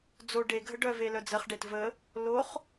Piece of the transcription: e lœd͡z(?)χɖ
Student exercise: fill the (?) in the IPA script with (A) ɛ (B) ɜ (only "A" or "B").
B